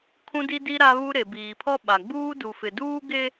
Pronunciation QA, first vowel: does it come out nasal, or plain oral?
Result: nasal